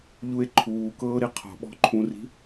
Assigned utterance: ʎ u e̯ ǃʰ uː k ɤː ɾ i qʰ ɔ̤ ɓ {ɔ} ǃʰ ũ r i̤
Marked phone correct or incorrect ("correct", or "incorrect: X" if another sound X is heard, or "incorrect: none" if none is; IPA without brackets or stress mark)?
incorrect: ɔ̤